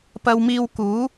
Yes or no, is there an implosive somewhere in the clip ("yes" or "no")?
no